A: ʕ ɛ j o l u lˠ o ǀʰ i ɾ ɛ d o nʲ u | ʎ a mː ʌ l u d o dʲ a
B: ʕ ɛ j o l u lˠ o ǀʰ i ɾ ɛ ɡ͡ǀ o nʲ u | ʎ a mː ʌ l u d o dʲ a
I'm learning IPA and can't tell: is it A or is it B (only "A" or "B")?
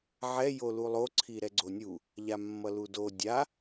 B